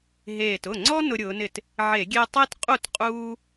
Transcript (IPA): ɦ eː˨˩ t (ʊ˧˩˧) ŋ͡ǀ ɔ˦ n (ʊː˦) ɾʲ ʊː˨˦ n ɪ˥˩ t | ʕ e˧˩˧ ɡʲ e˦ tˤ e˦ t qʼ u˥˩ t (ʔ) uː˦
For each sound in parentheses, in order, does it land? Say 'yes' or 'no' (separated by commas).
no, no, no